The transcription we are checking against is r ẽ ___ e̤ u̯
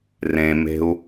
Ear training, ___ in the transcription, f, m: m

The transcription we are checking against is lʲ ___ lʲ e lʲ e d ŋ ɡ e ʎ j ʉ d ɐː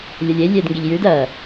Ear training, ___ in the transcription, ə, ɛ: ə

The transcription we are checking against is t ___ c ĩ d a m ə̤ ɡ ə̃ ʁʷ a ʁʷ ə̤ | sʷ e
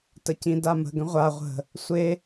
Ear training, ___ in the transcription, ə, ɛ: ə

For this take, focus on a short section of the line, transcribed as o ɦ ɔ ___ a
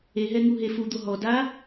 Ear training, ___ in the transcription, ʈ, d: d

